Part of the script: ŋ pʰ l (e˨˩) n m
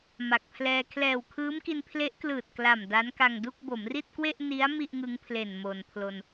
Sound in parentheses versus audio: correct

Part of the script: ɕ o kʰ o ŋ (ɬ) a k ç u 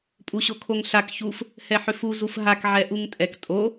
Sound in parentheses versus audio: correct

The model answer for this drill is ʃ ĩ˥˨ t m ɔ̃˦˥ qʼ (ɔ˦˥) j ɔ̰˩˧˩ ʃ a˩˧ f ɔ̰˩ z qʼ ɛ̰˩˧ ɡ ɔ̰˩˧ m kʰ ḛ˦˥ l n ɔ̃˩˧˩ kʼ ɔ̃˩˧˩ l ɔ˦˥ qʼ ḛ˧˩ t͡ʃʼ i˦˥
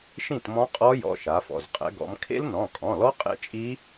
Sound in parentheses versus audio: correct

